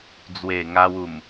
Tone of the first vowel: low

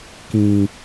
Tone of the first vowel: low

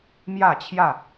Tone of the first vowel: falling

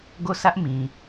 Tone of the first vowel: falling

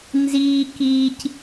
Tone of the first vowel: high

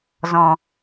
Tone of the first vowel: low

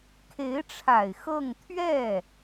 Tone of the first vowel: rising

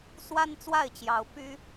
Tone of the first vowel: high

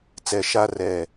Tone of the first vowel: low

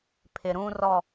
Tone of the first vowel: low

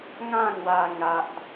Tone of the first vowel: falling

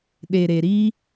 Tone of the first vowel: low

